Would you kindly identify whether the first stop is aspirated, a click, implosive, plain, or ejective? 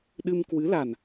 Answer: implosive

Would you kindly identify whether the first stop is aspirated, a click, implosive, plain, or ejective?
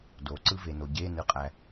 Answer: plain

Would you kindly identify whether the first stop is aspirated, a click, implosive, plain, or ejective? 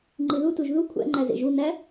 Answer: click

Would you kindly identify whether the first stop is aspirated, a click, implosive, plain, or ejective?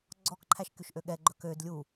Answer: click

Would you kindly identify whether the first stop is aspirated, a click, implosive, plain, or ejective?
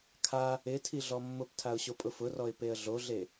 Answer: aspirated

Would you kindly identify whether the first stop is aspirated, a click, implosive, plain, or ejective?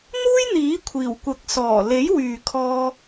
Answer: aspirated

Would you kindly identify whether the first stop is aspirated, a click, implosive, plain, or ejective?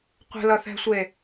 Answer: plain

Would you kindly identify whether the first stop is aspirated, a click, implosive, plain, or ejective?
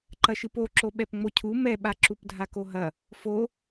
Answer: click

